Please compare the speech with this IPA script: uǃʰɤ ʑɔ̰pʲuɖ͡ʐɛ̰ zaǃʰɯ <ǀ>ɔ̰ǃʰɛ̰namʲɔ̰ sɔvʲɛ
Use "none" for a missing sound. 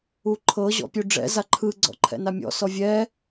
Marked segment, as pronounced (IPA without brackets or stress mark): ɡ͡ǀ